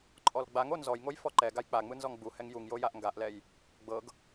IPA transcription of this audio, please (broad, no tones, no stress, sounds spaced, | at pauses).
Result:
ǃʼ ɔ l ɡ͡b a ŋ o n z ɔ j ŋ o j f ɔ ǃ ɛ ɡ a j k͡p a ŋ͡m ɯ n z ɔ ŋ ɡ͡b u h ɛ ŋ j u ŋ j o j a ʔ ŋ ɡ a ʔ l ɛ j | ɡ͡b ɤ ɡ